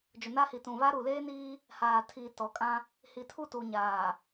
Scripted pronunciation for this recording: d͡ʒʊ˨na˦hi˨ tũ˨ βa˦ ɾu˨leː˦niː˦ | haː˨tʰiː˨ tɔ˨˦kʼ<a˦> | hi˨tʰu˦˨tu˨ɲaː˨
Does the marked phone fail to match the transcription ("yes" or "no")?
yes